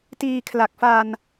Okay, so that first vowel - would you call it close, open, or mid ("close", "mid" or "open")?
close